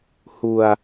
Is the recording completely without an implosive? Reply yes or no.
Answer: yes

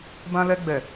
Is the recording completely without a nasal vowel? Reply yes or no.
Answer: no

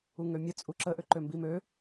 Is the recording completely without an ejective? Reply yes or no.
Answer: no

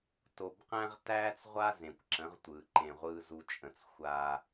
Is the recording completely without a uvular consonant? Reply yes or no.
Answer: no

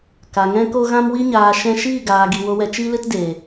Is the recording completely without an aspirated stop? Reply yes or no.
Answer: yes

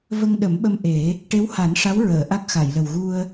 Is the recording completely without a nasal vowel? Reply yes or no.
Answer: yes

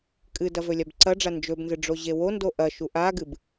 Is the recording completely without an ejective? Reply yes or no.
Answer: no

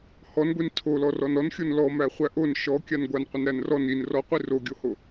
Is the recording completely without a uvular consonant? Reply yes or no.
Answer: no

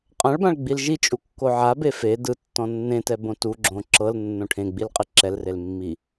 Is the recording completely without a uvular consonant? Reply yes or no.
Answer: no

